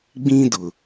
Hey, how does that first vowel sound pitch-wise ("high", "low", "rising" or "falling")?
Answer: high